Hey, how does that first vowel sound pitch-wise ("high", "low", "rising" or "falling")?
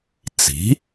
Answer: rising